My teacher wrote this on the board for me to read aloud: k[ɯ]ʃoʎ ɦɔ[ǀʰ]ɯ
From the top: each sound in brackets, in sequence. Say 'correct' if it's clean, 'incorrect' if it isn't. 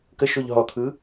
incorrect: ə, incorrect: t̪ʰ

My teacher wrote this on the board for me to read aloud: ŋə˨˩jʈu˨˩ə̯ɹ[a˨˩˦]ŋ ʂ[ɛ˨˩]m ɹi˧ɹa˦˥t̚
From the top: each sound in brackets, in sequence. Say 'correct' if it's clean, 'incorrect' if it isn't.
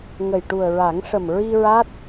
correct, incorrect: ə˨˩

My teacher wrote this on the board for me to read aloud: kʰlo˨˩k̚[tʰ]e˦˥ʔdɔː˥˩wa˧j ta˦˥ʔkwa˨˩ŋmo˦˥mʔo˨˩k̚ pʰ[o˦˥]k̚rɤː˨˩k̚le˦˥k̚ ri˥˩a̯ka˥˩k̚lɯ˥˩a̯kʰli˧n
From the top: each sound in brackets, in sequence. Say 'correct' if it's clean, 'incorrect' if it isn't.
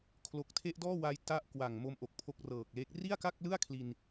correct, correct

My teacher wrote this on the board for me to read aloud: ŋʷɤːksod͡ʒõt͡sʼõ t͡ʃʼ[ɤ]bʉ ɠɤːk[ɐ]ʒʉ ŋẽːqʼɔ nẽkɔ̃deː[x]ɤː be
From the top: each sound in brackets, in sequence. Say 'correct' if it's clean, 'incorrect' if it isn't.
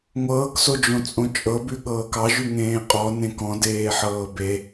correct, incorrect: ɑ, incorrect: ħ

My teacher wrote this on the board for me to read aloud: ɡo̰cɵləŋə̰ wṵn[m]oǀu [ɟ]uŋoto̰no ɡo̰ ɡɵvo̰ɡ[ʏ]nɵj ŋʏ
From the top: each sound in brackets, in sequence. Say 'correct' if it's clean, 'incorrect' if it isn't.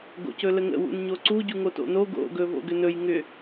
incorrect: ɲ, correct, correct

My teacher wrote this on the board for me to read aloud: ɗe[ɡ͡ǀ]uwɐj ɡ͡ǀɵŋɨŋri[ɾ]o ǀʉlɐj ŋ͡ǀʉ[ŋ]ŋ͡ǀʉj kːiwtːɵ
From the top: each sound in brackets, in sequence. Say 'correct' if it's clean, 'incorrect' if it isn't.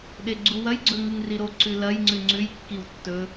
correct, correct, incorrect: none

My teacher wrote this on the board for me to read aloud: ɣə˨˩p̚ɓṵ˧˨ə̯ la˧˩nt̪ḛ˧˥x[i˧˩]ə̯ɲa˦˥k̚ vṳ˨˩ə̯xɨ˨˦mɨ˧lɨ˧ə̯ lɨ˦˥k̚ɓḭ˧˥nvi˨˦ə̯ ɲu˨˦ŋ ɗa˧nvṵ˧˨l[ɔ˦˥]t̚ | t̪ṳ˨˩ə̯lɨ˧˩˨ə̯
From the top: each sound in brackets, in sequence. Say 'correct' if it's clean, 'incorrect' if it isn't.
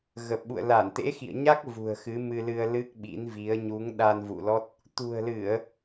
incorrect: ḭ˧˨, correct

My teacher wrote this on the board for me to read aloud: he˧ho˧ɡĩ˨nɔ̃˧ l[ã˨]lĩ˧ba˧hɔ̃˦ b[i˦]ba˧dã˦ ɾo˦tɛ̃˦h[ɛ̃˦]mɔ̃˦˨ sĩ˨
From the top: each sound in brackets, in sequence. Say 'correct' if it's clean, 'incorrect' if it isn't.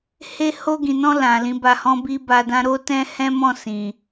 correct, correct, correct

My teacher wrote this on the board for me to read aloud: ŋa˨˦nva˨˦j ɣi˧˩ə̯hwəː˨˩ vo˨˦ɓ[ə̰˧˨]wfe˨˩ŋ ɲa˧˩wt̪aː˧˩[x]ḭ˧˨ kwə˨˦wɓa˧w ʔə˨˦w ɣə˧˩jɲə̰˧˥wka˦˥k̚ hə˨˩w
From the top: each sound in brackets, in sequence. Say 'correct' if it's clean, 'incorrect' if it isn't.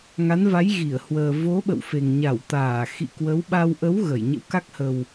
correct, correct

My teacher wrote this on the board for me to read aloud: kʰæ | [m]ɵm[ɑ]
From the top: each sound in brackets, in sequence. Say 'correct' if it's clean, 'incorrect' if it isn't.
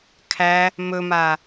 correct, incorrect: a

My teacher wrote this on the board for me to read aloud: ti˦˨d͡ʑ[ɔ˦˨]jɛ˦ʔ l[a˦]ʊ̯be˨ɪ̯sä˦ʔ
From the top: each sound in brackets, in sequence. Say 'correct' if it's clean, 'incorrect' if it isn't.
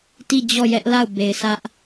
correct, incorrect: a˦˨

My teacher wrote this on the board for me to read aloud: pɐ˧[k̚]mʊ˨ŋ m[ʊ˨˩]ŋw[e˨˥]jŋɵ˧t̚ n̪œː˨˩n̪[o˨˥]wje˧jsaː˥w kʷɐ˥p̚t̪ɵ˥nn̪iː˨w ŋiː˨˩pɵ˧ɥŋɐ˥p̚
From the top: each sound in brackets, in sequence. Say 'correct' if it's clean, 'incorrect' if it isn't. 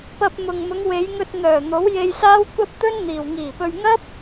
incorrect: p̚, incorrect: ʊ˨˧, incorrect: e˨˧, correct

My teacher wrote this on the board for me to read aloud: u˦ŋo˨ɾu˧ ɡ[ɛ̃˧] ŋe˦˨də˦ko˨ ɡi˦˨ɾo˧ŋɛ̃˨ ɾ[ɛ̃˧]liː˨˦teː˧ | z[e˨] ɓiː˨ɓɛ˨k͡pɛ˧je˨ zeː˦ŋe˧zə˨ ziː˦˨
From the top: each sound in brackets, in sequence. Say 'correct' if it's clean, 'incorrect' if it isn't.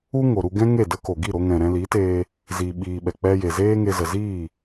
incorrect: ɛ̃˦, correct, incorrect: i˨

